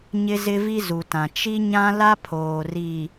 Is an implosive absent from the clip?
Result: yes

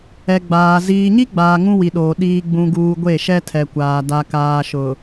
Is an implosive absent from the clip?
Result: no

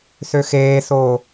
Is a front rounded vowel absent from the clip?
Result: no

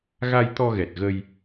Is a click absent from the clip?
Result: yes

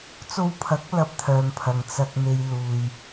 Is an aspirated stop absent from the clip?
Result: no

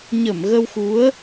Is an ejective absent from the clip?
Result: yes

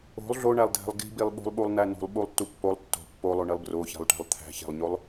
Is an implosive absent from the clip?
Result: no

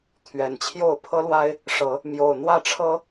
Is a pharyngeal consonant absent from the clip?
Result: yes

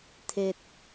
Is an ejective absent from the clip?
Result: yes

